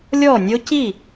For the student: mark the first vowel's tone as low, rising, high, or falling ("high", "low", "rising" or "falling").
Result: falling